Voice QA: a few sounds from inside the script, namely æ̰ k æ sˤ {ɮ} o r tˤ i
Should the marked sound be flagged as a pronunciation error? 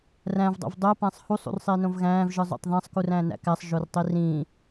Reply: yes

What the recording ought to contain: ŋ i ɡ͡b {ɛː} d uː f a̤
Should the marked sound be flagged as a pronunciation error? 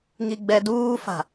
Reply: yes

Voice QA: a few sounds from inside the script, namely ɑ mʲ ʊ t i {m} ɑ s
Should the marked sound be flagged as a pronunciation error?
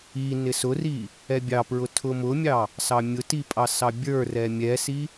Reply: yes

